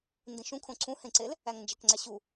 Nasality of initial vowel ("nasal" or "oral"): nasal